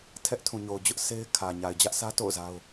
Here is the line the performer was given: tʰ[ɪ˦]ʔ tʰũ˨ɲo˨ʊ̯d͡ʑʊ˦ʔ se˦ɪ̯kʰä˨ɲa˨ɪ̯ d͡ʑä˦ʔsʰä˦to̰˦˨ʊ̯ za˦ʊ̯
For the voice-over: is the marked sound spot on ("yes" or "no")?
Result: no